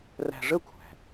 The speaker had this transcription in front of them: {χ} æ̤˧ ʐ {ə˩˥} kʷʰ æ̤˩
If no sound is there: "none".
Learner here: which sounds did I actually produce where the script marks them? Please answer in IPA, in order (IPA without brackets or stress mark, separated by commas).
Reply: r, ə˥